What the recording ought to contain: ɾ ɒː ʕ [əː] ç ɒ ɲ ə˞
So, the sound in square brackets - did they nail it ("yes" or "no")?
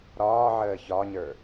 yes